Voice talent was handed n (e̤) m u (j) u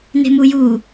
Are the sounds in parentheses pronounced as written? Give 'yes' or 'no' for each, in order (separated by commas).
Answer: yes, yes